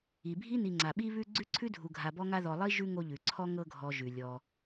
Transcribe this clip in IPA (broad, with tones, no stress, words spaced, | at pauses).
i˩bʱi˥ni˨ŋ͡ǀa˩ ɓi˦βʉ˦ ɡ͡ǀʉ˥ǀʰʉ˥dʱu˨ ɡʱa˨bɔ˦ŋa˦ ðɔ˨lˠi˥ ʒʉ˥ŋo˦ʎʉ˩ǀʰɔ˥ ŋɤ˦ɡʱɔ˨ ʒʉ˩lʲɔ˨